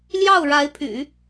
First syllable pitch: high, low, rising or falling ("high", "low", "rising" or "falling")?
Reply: falling